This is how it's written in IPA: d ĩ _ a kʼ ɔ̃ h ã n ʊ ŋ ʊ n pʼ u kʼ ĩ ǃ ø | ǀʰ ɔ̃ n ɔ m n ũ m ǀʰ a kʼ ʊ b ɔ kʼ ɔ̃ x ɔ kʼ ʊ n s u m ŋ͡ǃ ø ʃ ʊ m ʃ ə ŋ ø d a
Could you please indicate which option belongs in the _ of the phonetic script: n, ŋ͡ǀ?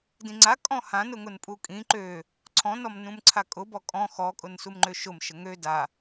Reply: ŋ͡ǀ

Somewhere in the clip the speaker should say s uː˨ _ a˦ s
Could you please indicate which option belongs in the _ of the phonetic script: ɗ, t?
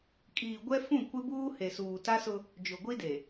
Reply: t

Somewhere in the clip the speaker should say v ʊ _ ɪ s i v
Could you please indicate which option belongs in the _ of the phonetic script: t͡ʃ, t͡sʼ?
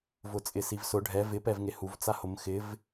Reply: t͡sʼ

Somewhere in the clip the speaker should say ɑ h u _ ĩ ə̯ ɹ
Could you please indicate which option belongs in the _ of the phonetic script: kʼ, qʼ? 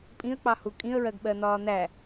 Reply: kʼ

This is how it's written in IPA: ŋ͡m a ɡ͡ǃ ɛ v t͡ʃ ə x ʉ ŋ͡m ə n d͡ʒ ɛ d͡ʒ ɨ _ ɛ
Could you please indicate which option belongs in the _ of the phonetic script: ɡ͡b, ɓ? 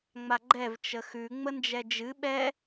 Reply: ɓ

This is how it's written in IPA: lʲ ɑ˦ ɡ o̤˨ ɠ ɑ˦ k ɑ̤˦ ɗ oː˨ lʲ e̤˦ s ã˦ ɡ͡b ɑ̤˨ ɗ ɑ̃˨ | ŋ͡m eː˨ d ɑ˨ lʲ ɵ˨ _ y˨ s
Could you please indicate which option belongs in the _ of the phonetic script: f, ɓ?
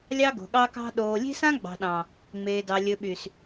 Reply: ɓ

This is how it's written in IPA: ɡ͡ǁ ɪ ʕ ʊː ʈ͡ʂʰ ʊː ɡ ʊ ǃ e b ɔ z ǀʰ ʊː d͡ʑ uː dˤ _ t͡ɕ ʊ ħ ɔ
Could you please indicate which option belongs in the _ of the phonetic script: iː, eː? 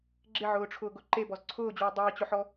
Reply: iː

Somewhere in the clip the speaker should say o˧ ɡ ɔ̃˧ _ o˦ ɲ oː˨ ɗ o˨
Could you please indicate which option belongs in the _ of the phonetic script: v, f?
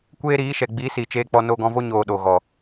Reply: v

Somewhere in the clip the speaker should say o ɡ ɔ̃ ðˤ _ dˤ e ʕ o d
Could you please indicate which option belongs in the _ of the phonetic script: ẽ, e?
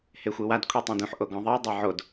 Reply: e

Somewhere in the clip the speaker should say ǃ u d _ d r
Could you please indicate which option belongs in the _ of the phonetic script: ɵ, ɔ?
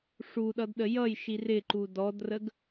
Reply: ɔ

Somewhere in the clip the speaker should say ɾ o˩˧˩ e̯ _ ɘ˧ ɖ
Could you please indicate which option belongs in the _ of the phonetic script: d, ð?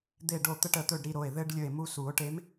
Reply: ð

